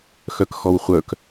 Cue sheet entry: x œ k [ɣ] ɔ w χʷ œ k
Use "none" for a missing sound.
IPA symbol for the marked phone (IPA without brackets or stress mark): x